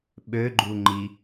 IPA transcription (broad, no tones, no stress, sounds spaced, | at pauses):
ɓ ø ɡ͡ǃ u ŋ͡ǃ i